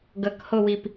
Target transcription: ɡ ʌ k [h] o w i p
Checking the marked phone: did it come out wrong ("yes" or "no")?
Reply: no